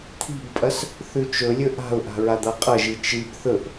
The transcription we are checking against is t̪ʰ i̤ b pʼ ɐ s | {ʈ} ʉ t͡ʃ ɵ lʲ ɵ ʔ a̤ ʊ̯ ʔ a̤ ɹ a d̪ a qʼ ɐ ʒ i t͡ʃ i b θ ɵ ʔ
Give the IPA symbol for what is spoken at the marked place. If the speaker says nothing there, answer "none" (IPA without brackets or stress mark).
θ